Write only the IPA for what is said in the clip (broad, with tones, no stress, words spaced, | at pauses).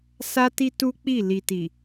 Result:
sa˦ti˦ tu˦k͡pi˦˨ li˨ti˨